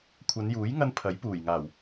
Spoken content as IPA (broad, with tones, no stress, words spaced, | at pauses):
kʷʰɐ˨˧njuː˨˥j ŋɐ˥npʰɐ˨˥j puː˨˩jŋaː˨˩w